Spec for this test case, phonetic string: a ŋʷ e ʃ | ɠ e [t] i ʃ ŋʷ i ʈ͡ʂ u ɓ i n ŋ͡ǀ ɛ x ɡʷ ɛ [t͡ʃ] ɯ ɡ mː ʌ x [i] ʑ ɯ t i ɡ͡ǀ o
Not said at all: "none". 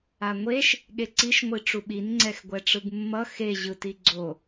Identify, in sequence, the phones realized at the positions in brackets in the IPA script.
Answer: ǀ, ʈ͡ʂ, e

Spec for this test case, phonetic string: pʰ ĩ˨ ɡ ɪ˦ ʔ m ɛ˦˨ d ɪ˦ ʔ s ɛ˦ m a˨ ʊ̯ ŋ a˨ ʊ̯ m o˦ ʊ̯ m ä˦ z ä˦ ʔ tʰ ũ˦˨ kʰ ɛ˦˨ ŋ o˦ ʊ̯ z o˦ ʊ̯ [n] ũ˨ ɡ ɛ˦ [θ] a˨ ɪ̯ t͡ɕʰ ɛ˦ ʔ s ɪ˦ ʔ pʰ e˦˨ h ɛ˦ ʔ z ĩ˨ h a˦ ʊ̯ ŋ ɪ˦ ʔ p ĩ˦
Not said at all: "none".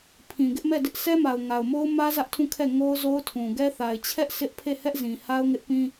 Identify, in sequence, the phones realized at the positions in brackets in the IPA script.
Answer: tʰ, θ

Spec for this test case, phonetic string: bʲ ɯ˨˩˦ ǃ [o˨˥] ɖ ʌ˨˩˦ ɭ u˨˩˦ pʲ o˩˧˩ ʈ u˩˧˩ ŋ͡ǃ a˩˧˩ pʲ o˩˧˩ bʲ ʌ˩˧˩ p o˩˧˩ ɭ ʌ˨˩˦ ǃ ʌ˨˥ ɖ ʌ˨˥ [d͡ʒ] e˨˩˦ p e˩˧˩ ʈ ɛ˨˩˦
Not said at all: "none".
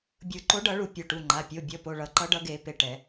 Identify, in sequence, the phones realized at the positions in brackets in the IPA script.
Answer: o˨˥, ɡ

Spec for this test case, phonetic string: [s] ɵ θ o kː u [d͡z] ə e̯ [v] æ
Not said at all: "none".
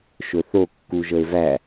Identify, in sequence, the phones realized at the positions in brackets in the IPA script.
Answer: ʃ, ʒ, v

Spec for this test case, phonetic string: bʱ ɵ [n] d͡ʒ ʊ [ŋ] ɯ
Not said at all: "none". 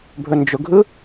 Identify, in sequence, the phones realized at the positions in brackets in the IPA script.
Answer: n, ɡʱ

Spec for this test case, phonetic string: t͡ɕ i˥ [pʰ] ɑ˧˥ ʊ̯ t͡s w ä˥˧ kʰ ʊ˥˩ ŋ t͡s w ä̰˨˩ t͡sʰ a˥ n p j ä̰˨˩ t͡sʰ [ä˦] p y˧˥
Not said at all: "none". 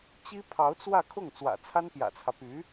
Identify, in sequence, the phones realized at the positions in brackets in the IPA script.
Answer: pʰ, ä˦

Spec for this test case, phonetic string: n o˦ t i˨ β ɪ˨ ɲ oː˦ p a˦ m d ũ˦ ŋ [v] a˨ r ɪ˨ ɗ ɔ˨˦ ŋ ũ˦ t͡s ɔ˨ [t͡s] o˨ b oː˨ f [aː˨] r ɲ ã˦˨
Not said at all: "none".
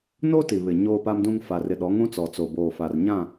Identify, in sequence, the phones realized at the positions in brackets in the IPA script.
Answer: f, t͡s, a˨

